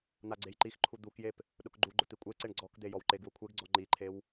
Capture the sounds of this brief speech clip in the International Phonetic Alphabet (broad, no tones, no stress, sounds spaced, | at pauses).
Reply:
n̪ a ɡ͡ǀ e j ǃ i x ǃʰ u d̪ u k j e p | ɗ ʊ k ɡ͡ǃ u ɡ͡ǃ ʊ t̪ i kʷʼ e ǀ e ɳ ɡ͡ǀ ɔ k d̪ e j ɔ w ǃ e ɡ w ʊ kʷʰ e ɡ ɡ͡ǀ ɔ ŋ͡ǃ i ǃʰ e w